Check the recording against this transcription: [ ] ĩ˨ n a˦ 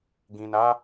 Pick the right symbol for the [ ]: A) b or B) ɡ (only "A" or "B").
B